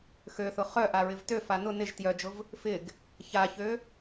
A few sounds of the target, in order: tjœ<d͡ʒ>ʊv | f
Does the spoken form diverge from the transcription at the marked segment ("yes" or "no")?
no